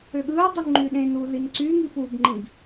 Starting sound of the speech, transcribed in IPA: ø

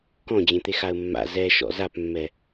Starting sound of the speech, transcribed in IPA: k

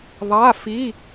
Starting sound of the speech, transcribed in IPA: ðˤ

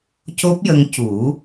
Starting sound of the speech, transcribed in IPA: c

